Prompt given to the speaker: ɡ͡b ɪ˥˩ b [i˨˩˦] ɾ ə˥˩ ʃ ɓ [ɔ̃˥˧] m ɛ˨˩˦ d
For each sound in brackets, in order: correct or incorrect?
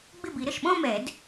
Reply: correct, correct

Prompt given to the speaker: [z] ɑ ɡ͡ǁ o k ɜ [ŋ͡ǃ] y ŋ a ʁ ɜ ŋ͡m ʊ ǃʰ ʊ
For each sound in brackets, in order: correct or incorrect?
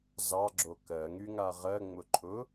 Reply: correct, incorrect

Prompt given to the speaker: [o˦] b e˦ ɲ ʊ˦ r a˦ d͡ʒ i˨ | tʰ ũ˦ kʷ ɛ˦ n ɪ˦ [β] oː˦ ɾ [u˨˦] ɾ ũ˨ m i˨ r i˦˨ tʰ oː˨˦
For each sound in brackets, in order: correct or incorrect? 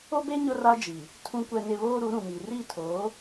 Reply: correct, correct, correct

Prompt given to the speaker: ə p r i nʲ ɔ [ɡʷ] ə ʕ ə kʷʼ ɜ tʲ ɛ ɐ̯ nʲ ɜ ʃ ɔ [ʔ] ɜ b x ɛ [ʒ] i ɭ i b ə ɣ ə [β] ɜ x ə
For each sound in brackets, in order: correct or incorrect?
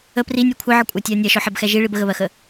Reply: incorrect, incorrect, correct, correct

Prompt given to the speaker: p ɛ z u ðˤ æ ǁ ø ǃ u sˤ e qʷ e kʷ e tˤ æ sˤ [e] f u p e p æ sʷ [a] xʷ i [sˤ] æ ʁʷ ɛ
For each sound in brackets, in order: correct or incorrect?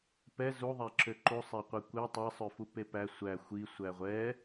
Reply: incorrect, incorrect, incorrect

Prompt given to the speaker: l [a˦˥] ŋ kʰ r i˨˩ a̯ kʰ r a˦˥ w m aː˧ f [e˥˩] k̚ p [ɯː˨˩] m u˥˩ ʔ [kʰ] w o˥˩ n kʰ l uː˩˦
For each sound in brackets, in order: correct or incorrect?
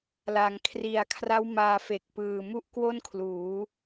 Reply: incorrect, incorrect, correct, incorrect

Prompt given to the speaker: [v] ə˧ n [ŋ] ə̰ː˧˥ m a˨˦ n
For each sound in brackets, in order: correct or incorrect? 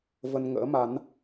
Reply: correct, correct

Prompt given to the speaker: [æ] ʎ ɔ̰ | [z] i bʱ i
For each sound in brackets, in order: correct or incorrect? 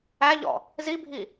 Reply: correct, correct

